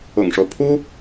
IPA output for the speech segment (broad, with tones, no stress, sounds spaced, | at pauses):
ʊ̰˨˩ ŋ ʂ o˦ ʊ̯ pʰ u˥